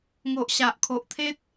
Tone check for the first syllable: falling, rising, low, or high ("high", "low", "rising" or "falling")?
low